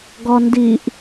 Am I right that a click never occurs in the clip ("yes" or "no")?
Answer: yes